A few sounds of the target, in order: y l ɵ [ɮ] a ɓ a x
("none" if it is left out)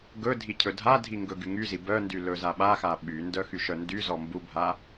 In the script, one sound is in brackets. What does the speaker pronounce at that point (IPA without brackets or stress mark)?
z